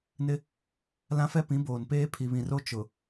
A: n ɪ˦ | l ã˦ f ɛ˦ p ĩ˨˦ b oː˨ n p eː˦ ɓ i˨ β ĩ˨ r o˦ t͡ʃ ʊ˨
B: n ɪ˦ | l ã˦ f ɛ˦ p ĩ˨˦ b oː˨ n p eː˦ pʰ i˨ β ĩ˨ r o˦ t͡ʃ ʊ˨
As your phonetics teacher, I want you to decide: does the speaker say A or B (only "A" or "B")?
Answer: B